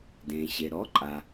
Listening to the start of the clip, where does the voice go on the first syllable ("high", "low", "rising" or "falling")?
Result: low